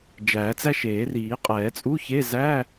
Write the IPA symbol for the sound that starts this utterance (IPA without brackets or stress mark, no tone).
d͡ʒ